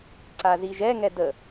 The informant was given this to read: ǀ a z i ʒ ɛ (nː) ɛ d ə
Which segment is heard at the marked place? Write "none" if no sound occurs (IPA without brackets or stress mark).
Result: ŋ